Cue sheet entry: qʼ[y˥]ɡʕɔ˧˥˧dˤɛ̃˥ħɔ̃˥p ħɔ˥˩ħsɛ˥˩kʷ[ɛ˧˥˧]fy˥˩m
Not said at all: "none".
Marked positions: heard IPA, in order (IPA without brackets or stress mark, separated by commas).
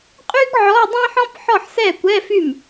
y˥, ɛ˧˥˧